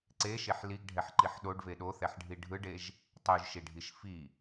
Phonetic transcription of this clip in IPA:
ǀ e ʃ e ħ l i ɡ ɖʱ ɛ ħ ǃ i ħ ɗ o ɖ v e ɗ o θ ɛ ħ ɖʱ i ɖʱ ɯ ɖ e ʒ | tˤ u ʒ ʃ i ɖʱ i ʃ f i

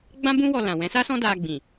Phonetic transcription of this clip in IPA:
ɡ͡b ã˦ b ũ˦ w ɔ˧ l ã˨ w ɛ̃˨˦ s a˦ s ɔ̃˦ d a˧ ɡ͡b ĩ˨

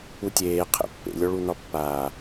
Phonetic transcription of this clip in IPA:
u tʲ eː qʰ ḛ pː ḛ lʲ ɔ ɭ u n ɒ pː aː

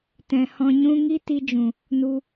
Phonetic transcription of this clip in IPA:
t ɛ̃˨ h ɔ̃˧ ɲ ũ˦ ŋ i˦ t i˧ d͡ʒ ũ˨ | n u˧

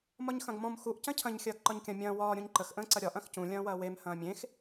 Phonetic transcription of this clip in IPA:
m ɒ ɲ x ɐ̃ ɡ m ɔ̃ m x u ʔ c ɐ̃ cʰ ɐ̃ ɲ xʲ ɐː ɡ ǃ ɒ ɲ kʲ ɐ̃ mʲ ɐ̃ː w ɒː ɾʲ ũ ɲ ǃ ə x ʔ ə̃ː ǀ ɐ ɾʲ ɒ ʔ ɐ̃ x c ũ lʲ ɐ̃ː w ɐː w e m h ɐ̃ː mʲ ẽ x

